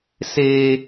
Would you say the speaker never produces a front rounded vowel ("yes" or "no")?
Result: yes